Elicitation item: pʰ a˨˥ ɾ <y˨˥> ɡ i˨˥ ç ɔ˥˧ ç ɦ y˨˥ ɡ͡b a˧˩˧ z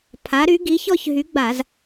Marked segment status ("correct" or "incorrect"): correct